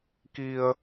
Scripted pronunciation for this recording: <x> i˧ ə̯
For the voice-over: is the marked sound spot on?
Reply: no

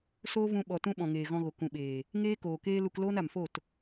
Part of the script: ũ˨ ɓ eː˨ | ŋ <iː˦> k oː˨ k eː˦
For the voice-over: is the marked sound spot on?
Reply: no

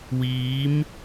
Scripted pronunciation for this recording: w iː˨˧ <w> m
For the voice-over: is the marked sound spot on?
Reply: no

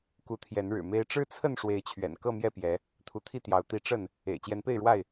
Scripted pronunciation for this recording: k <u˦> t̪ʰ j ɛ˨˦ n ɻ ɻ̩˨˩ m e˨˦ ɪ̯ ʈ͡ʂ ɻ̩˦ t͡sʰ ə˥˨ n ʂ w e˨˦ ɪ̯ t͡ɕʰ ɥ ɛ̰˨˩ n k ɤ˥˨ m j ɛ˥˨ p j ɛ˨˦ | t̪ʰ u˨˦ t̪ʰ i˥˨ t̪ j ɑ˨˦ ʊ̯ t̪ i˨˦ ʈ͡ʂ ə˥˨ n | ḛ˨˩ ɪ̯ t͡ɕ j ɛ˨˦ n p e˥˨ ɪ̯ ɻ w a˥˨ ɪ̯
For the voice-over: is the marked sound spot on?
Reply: no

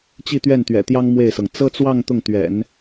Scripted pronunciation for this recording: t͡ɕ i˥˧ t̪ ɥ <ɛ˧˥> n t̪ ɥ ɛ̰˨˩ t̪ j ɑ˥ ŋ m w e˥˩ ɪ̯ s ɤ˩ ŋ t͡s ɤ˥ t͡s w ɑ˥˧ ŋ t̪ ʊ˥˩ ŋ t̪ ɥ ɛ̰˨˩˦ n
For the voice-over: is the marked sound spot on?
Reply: no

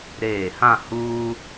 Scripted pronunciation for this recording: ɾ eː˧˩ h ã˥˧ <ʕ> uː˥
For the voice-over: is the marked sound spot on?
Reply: no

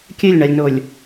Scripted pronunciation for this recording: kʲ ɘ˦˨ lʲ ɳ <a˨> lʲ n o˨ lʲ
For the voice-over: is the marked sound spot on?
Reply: yes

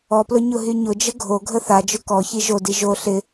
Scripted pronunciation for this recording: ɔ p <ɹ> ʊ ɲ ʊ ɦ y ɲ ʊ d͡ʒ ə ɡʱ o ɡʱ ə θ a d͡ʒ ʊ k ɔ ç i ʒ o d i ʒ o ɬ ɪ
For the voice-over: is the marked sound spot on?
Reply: no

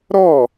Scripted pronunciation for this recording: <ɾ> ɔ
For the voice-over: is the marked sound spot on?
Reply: yes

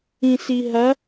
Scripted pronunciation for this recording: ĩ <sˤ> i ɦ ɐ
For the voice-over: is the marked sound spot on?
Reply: no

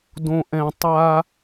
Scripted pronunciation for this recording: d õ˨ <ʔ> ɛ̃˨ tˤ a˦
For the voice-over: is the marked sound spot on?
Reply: yes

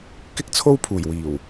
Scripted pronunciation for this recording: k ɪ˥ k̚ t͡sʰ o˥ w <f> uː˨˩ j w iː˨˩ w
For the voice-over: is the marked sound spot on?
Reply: no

